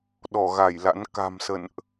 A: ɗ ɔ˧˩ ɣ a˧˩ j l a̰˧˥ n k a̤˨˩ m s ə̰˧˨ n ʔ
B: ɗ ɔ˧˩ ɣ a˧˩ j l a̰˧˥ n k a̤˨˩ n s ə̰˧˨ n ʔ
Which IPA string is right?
A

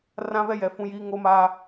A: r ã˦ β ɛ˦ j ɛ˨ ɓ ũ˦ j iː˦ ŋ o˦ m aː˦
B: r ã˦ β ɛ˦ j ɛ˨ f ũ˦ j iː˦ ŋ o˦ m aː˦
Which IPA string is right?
B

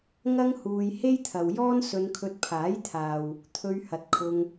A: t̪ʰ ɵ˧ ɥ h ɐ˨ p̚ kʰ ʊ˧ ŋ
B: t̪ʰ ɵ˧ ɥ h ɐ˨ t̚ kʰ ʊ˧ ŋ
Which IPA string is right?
B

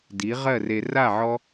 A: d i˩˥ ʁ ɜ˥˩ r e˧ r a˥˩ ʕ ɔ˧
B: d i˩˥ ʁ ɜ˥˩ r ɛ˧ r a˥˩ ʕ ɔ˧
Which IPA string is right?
A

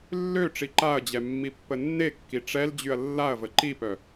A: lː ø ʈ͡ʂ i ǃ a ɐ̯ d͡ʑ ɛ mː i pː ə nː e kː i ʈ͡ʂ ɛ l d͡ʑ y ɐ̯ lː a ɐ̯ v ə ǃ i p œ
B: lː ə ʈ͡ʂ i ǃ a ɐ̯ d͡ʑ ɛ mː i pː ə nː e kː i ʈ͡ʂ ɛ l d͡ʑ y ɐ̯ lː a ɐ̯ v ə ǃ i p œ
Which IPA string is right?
A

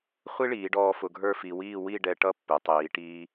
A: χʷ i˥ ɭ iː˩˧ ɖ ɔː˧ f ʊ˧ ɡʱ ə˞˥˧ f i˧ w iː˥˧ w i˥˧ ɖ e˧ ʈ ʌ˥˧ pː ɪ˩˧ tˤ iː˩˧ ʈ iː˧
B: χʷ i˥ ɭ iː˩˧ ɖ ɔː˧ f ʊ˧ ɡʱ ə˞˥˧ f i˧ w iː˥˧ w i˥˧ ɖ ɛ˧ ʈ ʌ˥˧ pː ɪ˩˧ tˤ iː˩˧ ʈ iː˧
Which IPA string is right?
B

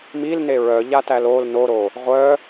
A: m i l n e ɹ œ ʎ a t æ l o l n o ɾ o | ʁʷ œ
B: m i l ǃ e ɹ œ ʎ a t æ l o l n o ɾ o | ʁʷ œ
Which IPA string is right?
A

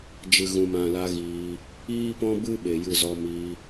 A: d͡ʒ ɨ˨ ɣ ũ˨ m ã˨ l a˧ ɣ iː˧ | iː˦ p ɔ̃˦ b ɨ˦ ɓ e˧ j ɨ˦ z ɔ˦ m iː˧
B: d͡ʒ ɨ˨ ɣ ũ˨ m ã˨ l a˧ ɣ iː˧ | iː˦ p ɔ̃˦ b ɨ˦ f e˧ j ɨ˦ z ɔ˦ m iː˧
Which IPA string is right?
A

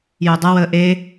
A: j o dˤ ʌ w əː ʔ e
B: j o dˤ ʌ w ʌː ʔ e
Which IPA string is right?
A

